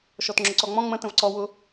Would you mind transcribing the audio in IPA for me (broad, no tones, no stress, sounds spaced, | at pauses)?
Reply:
ʃ ɔ t ŋ͡ǁ ʊ ǀ ɔ ŋ͡m ɔ̃ ŋ͡m ə̃ t ə̃ v ǀ ɔ w ʊ